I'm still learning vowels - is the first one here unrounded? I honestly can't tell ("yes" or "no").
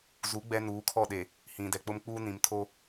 no